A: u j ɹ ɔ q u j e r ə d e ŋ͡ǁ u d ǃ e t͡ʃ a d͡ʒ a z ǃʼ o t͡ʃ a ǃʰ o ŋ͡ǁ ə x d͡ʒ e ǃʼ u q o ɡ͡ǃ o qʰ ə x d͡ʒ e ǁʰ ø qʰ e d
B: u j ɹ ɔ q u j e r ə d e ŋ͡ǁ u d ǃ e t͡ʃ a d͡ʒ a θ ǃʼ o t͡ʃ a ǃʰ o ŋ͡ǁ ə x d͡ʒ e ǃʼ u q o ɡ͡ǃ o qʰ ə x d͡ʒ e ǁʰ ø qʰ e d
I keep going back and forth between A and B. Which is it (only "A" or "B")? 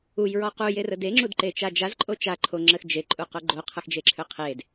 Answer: A